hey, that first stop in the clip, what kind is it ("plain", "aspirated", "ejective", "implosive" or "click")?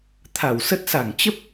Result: aspirated